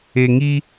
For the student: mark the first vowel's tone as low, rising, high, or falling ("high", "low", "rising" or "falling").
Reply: low